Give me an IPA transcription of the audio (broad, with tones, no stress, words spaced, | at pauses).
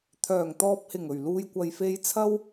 t̪ʰœː˨˩ŋt̪ɔː˨p̚hɪ˨˩ŋɵ˨˩ɥ luː˨jkʷɐ˨jfe˧jt͡sʰɐ˥w